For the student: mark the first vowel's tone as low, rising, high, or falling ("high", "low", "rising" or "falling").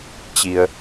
low